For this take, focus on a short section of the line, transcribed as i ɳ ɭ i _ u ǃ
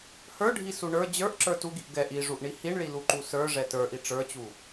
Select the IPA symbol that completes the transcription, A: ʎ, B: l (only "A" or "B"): B